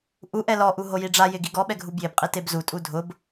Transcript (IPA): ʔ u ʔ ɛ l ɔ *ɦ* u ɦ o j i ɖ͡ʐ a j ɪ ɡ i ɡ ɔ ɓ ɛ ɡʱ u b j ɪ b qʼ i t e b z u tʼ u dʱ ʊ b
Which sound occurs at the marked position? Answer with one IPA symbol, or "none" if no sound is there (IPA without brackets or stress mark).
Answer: ʔ